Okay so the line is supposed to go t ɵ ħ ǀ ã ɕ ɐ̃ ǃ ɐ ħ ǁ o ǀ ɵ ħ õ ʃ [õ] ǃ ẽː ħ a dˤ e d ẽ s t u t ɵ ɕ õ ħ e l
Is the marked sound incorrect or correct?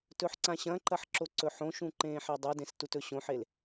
incorrect